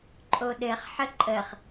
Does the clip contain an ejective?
yes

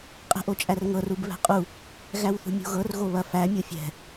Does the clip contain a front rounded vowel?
no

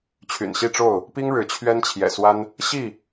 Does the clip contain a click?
no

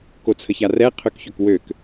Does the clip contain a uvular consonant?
yes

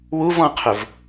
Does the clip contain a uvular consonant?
yes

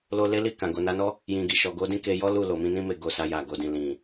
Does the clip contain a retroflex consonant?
no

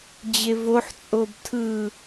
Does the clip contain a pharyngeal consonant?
yes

